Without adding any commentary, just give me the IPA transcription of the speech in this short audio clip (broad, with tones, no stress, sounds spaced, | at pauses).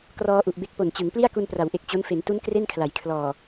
k r ɔː˧ ʔ u˨˩ ʔ b e˦˥ k̚ p o˨˩ n t͡ɕ ɯ˩˦ ŋ p l i˥˩ a̯ k u˧ n p r a˩˦ w ʔ e˨˩ k̚ t͡ɕ o˦˥ n f e˩˦ n t u˦˥ n k r e˥˩ n kʰ l a˩˦ j kʰ l ɔː˨˩